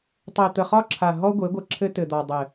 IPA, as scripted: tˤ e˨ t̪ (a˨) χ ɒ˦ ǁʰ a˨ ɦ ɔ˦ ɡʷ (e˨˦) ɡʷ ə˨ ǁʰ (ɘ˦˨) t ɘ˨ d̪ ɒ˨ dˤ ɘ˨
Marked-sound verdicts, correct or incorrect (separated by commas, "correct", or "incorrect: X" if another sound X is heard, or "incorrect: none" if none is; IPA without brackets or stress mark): incorrect: ə˨, correct, incorrect: ɘ˦